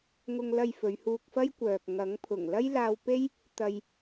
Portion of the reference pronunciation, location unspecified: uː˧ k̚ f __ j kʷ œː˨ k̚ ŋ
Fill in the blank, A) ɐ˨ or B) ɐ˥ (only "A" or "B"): B